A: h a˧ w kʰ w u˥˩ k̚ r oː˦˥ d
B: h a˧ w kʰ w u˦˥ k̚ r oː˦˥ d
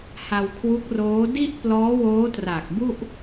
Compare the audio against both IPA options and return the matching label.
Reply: B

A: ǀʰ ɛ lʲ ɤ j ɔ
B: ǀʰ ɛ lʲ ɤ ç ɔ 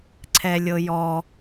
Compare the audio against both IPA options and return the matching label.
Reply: A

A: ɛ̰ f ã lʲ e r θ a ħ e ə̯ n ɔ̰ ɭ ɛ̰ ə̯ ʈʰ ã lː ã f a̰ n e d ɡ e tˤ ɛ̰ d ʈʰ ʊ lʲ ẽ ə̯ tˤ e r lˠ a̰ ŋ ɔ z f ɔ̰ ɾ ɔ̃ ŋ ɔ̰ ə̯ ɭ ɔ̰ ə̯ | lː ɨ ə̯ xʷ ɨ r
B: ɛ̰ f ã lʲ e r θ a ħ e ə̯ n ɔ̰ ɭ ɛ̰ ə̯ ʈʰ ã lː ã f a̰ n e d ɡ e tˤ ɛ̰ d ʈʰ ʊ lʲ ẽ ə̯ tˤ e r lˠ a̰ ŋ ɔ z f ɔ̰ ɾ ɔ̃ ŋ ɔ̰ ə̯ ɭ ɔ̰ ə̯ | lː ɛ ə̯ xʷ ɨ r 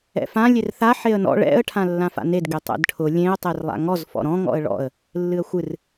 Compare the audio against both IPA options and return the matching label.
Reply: A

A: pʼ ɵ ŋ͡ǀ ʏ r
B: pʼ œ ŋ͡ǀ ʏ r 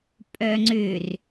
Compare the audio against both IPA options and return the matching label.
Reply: B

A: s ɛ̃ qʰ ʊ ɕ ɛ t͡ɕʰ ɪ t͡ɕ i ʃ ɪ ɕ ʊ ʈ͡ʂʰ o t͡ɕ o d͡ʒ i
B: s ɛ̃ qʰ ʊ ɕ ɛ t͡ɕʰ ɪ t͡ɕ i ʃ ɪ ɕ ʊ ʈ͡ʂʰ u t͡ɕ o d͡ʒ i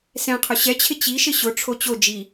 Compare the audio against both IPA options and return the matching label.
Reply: A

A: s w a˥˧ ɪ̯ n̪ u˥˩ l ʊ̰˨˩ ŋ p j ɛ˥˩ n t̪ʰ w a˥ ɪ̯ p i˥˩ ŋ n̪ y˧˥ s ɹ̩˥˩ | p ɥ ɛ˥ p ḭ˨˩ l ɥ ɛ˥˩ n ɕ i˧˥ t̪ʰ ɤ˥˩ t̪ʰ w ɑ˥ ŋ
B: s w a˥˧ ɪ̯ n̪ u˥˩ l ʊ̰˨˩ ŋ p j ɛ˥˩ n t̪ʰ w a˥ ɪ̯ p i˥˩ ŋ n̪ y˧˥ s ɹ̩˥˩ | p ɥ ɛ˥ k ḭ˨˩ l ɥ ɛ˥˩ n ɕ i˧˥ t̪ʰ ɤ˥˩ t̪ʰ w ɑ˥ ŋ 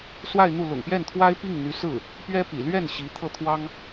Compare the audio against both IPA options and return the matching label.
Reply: A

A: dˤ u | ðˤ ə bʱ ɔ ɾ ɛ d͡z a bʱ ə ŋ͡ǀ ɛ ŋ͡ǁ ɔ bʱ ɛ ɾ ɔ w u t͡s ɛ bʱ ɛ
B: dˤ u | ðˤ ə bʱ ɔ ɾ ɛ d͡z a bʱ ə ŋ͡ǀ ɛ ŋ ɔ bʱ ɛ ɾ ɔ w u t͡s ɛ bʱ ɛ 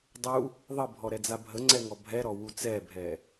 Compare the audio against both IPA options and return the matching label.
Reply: B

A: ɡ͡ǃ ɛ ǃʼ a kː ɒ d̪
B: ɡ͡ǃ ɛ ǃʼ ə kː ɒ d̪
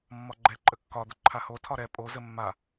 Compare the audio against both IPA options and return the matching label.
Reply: B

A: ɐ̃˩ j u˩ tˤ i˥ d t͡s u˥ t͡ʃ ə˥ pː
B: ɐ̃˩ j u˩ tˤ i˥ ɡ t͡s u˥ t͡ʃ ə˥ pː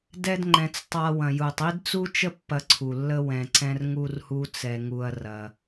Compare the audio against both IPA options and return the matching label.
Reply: A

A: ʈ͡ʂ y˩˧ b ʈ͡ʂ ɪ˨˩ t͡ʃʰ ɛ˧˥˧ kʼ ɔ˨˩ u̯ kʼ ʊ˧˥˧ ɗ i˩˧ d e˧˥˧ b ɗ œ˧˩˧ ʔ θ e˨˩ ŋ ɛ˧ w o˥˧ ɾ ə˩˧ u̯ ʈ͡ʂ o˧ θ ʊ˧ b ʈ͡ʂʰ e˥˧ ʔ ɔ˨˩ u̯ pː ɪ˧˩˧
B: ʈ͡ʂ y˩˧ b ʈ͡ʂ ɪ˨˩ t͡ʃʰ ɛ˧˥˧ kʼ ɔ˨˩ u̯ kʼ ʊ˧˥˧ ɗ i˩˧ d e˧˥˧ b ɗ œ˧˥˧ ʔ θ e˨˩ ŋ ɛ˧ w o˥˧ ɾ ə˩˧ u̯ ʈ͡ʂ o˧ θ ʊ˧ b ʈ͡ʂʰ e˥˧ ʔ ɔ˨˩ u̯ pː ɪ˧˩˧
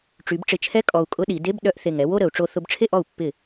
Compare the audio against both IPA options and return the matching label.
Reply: A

